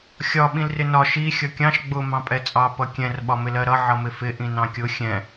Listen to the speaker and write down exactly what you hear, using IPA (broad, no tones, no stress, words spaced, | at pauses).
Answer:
xʲɒ ɓĩlrɪnɒ ʃi xʲʌkʲɑ̃ʃ ɡ͡bʊ mɑ̃pʼɛt͡sʼɑ pʌkʲɛ̃r ɓɒmɪlɜɾʌ ʕʌmɪfɪ ʔĩnɑ̃kʲʊ xʲɛ̃